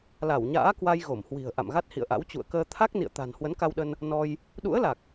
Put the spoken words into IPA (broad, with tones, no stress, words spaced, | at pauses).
la˧˩wɲa̰ː˧˥kwa˧j ɣo˧˩mhwi̤˨˩ə̯ ʔa̰˧˨mɣa˦˥t̚hḭ˧˨ə̯ʔa̰˧˥w t͡ɕṵ˧˨ə̯kəː˧ t̪ʰa˦˥k̚nḭ˧˨ə̯t̪a̤˨˩n hwə˨˦nka˧wɗə˧n | nɔ˧j | ɗṵ˧˥ə̯la˨˩k̚